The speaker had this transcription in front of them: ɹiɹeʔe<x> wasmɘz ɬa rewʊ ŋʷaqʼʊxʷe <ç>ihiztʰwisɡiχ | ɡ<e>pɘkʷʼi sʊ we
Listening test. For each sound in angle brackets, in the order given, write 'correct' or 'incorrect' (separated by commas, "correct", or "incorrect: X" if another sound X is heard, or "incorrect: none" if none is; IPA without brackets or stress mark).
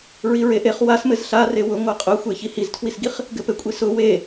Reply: incorrect: χ, correct, incorrect: ɘ